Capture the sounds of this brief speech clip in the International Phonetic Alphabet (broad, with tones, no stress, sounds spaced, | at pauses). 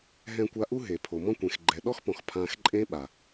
ɦ ɛ̃˧ kʷ a˧ ʔ u˦ ɦ e˨ pʰ o˨ m ɔ̃˦ kʷ ẽ˨ x ɡ͡ǃ ɛ˨ ɗ ɔ˦ x p ɔ̃˨ x pʰ ã˧ x ǃʼ ẽ˦ ɓ a˨